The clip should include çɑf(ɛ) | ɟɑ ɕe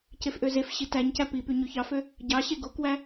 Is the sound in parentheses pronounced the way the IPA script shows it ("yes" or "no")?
no